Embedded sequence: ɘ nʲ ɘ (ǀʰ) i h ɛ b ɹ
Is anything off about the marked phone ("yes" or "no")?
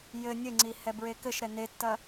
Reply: yes